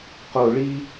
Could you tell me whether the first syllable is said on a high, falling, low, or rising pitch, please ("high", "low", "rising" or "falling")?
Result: falling